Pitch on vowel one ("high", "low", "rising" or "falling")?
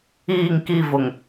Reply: falling